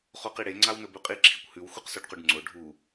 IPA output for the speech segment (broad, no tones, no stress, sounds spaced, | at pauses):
χ o q i ɽ e ŋ͡ǀ a w n ɵ b ʉ qʼ i ǁʰ i kʷ h ʉ w xʷ ɐ q s o ɖ q u ɖ ŋ͡ǀ o ɖʱ u